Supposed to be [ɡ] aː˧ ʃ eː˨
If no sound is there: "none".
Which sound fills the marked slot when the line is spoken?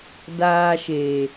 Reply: d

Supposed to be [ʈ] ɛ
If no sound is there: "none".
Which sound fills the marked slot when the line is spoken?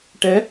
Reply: ʈ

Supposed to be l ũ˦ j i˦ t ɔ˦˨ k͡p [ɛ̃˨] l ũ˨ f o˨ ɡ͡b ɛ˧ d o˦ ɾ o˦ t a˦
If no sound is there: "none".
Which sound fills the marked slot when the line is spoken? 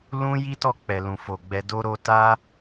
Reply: ɛ˨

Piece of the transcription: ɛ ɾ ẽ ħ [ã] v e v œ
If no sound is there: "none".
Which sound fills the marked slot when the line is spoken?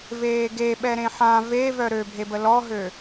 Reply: ã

